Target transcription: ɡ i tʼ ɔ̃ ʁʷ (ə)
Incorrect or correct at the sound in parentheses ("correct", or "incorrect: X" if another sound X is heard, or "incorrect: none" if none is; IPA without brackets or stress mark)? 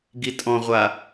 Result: incorrect: a